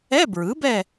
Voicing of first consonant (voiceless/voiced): voiced